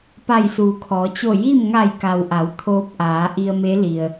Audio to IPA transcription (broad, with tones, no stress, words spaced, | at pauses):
pa˧˩jsuː˩kʰɔː˩˧ t͡ɕo˧˩ji˥˨m ŋa˧˩jka˩wʔa˩˧w t̪ʰoː˧˥p̚ʔaː˩˧ ʔi˧ə̯me˧˥li˩ə̯